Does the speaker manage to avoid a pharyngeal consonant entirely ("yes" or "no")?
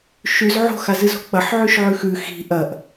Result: no